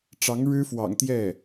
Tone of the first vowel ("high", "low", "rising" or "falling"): rising